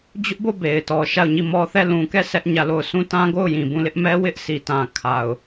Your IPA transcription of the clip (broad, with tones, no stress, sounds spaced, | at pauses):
d͡ʑ ʊ˦ ʔ b o˦˨ b e˨ ɪ̯ t ɔ˨ ʃ a˦˨ ʊ̯ ɲ i˦˨ m ɔ˦ θ ɛ˦˨ l ũ˨ k ɛ˦˨ sʰ ɛ˦ ʔ ɲ ä˦˨ l o˦˨ ʊ̯ sʰ ũ˦˨ t ã˦ ɡ o˦˨ ʊ̯ j ĩ˨ b ũ˦˨ l ɪ˦ ʔ m ɛ˦ w ɪ˦ ʔ sʰ i˨ t ã˨ kʰ a˨ ʊ̯